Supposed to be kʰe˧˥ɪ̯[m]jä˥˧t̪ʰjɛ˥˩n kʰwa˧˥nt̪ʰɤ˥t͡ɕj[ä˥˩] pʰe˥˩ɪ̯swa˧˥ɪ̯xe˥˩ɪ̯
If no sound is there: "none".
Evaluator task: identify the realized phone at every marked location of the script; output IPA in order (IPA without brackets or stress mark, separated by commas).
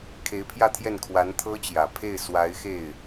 pʰ, ä˨˩